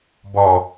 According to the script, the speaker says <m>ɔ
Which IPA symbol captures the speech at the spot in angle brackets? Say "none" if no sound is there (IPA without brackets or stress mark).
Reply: b